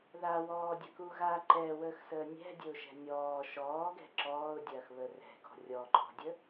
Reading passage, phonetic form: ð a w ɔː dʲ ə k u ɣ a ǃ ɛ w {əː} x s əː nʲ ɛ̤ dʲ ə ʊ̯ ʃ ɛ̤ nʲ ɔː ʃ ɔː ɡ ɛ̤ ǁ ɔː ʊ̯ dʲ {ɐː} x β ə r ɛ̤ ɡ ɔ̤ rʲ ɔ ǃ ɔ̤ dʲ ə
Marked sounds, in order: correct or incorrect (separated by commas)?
correct, correct